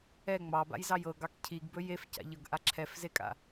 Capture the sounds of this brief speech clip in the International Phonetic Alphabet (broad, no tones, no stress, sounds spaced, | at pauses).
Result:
ɛ ŋ͡m ɑ b a̰ j z ɑ j ɤ ɡ ɑ k cʰ i ɡ b ɵ j e f c a̰ ʎ ɤ ɡ ʔ a ǁʰ ɛ f z e kʼ a̰